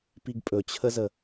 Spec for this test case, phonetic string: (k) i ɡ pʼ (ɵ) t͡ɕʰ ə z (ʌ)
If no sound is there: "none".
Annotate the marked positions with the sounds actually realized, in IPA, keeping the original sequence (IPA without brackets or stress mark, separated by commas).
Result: p, ɵ, ə